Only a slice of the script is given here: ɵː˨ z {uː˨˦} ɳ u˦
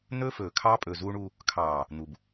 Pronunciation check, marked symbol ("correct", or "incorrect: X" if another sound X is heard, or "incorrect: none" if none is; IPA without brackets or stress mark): incorrect: uː˦